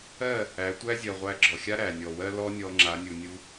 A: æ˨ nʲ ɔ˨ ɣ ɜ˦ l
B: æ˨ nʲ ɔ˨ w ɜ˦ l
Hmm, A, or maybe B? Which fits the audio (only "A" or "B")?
B